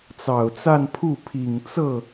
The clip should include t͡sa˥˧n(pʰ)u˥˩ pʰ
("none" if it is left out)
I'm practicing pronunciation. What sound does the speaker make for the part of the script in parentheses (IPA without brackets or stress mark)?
pʰ